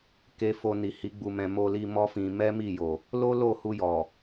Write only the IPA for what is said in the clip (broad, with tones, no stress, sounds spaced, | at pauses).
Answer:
k e˧ f o˧ n i˨ h i˨˦ ɡ͡b u˧ m ɛ̃˧ m o˧ l i˧ m ɔ˦ f ĩ˧ m ɛ˦ m i˦˨ j o˨ | l o˦ l o˦˨ h u˧ j ɔ˨